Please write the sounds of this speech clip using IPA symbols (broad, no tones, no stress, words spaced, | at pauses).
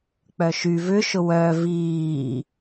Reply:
k͡pœʃy vʏʃʊ wœ viː